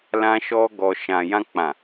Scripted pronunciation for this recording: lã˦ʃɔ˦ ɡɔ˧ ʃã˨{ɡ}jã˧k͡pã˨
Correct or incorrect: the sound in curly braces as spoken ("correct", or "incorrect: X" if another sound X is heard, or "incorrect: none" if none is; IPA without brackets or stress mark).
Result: incorrect: none